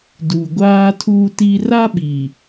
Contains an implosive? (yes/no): yes